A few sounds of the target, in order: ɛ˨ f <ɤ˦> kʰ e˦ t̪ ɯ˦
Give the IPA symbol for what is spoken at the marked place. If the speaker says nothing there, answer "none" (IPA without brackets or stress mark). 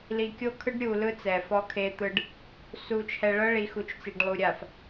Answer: ɔ˦